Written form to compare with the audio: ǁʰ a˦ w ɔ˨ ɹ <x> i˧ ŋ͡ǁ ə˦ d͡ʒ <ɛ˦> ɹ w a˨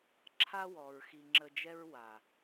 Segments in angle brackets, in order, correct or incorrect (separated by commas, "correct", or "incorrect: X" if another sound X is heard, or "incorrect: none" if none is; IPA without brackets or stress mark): correct, correct